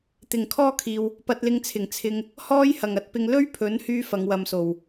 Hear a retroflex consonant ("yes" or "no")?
no